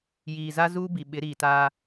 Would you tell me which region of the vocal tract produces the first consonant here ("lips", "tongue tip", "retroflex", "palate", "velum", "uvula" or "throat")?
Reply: palate